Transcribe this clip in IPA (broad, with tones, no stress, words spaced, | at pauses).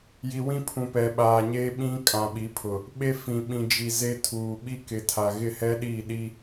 ji˨wĩ˦ pʰũ˨pɛ˨ɓaː˨ɲeː˦ ɓĩ˦ kʼã˨ɓi˨˦pʰʊ˨ | ɓe˦fĩ˨ ɓĩ˨ d͡ʒi˨ze˦tʰuː˨ ɓi˦kɪ˨tʰa˨ ɣɪ˦˨hɛ˦ɗiː˦˨ɗi˦